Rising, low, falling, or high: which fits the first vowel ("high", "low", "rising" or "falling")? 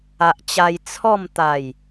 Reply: low